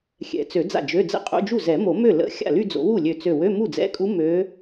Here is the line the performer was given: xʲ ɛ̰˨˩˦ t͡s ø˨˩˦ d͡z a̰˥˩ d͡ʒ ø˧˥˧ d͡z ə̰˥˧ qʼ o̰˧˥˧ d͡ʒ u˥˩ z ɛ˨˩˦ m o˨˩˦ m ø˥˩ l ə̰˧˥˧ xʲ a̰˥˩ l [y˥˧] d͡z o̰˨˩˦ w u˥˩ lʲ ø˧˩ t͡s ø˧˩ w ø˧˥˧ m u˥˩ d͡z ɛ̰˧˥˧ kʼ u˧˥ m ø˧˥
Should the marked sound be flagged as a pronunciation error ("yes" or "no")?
no